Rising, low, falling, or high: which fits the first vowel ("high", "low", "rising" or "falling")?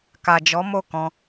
low